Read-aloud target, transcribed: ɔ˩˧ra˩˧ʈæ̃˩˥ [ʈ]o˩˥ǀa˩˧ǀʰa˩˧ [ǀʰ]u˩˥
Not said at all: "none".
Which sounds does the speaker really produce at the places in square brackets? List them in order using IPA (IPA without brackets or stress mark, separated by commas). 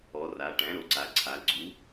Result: ɾ, ɡ͡ǀ